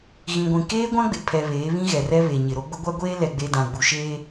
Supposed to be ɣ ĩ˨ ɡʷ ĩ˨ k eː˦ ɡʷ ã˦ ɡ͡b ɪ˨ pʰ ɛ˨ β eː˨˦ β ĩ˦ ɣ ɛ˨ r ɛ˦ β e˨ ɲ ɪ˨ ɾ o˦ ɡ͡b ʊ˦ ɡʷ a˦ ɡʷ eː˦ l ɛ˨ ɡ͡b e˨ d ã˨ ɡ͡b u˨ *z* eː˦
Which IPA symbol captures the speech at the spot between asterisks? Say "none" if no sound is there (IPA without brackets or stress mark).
ʃ